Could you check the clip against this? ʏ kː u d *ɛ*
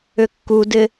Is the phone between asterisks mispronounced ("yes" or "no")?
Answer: yes